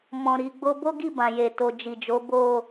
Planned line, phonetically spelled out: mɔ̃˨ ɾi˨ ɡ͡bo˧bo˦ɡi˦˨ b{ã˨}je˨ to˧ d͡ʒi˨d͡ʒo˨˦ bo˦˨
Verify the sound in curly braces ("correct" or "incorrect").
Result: correct